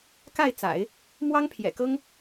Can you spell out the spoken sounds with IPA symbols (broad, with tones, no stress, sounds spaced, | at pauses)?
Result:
k a˥˩ ɪ̯ t͡s a̰˨˩˦ ɪ̯ | m w ɑ˥ ŋ pʰ j ɛ̰˨˩ k ɤ˥ ŋ